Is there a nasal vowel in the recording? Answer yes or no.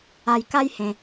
yes